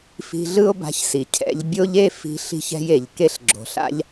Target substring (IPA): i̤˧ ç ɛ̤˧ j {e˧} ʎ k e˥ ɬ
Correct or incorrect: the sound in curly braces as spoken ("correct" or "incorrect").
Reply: incorrect